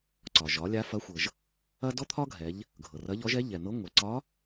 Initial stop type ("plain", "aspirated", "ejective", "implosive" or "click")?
click